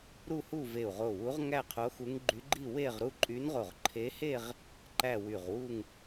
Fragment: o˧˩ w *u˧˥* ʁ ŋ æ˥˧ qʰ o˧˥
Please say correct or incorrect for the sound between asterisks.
correct